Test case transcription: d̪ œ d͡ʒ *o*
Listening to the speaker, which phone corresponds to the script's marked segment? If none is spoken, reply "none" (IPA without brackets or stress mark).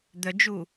u